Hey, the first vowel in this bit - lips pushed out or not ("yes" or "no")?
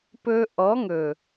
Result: yes